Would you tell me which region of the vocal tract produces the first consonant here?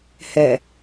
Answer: throat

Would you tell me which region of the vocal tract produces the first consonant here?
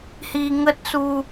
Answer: throat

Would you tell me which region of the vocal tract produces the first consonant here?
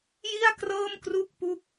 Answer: palate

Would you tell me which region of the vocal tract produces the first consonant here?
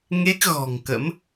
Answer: velum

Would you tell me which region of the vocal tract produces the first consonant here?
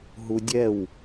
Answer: throat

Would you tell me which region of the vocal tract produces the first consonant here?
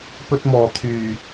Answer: lips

